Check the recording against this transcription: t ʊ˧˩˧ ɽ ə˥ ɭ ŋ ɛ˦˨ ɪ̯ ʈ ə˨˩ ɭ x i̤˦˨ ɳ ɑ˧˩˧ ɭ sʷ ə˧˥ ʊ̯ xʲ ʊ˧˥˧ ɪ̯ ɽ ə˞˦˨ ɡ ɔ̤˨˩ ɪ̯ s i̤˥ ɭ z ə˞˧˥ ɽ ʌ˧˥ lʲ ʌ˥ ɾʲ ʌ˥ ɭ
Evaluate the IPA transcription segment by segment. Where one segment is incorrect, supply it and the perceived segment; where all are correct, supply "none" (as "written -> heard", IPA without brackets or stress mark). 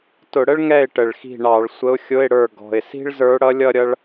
none